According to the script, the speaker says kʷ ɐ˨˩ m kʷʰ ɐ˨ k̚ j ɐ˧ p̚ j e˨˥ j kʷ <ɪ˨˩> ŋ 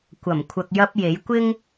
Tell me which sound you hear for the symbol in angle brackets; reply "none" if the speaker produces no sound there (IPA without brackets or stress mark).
ɪ˥